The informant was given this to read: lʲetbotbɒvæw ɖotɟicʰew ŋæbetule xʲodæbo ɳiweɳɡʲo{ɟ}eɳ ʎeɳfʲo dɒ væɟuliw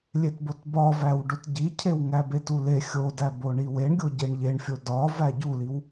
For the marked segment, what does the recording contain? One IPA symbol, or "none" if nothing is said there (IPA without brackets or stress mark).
ɟ